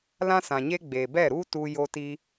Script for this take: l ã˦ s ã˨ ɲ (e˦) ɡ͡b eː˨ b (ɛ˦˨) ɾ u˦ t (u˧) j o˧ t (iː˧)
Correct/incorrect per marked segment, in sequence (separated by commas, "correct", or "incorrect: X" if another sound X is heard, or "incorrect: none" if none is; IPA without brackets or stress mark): correct, correct, correct, correct